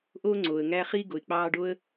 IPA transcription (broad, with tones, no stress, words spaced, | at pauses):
ʔo˦ŋ͡ǀo˩ə̯ ŋæ˦χi˥ ɡo˩ɪ̯k͡pɑː˦ ɖo˥ə̯